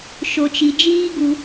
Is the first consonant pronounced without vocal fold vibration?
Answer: yes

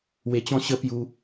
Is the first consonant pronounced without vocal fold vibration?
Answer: no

